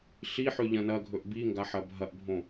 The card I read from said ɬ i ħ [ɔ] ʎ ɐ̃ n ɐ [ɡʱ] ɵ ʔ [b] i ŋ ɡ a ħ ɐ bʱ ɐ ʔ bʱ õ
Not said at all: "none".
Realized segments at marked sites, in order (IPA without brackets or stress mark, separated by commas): ɵ, ɡʱ, b